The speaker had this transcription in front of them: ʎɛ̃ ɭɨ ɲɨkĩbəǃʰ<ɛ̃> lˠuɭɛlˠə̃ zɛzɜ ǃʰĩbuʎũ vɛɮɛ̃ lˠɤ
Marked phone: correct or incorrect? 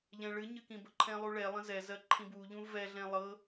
correct